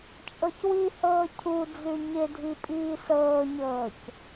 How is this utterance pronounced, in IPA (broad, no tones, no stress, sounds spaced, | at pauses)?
t͡ʃʼ ɤ c w i h ɤː cʰ u d͡z ʉ ɲ ɪ dʱ i pʼ iː s ɤː ɲ ɤː c